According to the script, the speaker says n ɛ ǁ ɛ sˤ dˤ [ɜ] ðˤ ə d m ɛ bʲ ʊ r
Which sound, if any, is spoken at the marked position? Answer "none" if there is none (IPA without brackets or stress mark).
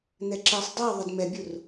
ɜ